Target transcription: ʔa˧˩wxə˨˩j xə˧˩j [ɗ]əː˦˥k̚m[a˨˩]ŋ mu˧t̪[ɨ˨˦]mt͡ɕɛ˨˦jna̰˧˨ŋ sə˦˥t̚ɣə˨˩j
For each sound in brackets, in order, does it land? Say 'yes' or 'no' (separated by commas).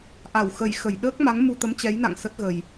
yes, no, no